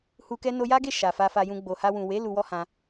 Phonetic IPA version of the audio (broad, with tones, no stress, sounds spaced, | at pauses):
h u˧ k ɛ˦ n o˧ j a˦ ɡ e˦˨ ʃ a˨ f a˧ f a˧ j ũ˧ ɡ͡b o˨ h a˧ w ũ˨ w e˨˦ l u˦ w ɔ˦ h ã˧